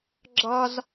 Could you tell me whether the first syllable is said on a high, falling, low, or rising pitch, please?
high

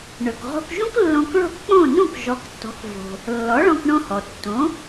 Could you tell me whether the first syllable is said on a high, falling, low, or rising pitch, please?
low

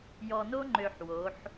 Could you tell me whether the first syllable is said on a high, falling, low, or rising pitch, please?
low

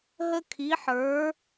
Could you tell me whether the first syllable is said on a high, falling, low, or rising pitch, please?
high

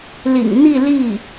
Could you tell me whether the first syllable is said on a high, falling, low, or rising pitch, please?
low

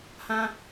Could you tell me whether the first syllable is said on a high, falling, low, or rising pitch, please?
high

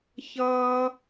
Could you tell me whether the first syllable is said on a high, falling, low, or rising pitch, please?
high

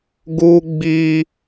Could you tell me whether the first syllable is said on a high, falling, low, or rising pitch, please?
high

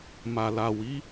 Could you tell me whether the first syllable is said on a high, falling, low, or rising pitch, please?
low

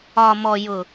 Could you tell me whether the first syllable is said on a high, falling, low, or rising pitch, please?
low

